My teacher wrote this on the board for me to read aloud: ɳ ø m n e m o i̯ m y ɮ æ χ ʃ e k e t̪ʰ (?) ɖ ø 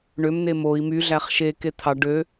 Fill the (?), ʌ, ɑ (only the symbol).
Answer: ɑ